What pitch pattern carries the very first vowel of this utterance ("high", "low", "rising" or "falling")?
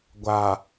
low